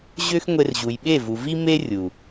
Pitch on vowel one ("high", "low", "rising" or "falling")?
high